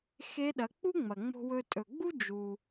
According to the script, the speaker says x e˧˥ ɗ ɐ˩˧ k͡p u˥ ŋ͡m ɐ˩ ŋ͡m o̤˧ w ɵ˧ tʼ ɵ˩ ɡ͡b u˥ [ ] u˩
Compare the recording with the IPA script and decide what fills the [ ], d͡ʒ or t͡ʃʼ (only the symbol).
d͡ʒ